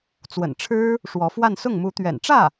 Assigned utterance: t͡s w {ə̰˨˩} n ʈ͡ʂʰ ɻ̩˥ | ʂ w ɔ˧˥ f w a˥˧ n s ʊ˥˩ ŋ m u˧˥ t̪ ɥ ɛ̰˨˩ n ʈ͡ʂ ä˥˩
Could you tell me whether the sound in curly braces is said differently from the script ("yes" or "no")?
no